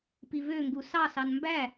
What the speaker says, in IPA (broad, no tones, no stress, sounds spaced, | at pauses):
p i v ø ŋ ɡ u s ɑ s ɑ n m b æ